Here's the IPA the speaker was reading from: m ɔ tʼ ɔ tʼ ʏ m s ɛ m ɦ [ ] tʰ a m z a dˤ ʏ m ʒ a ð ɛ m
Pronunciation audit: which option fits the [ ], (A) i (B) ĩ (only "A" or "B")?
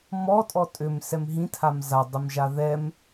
B